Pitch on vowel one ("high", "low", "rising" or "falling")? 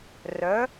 rising